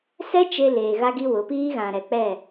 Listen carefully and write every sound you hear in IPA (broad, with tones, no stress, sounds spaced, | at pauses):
s ɛ˦ t͡ʃ e˦ l eː˨ ɣ a˦ ɡ i˦ w ʊ˨˦ p iː˦ ɣ ã˨ ɾ ɛ˨ k͡p ɛ˦˨